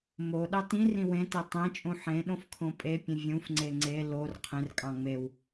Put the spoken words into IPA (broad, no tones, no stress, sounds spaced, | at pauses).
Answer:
m o ɗ ɑ t ĩ r ĩ w ẽ t e tˤ ẽ t͡ʃʼ ũ ħ ẽ ɗ õ f kʰ õ pʼ e pʲ ẽ vʲ ũ f ŋ͡ǀ e ŋ͡ǀ e l o r qʰ ẽ r kʼ ɑ̃ ŋ͡m e w